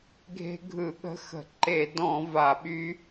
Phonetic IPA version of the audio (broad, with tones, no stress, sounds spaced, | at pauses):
ɡʱ e̤˦˥ ɡʱ ɯ˧˩˧ ɠ ə̤˦˥ x ə̤˧˩˧ ǃ e˧˩˧ d ɔ̃˧˩˧ v a˧˩˧ ɓ y˦˥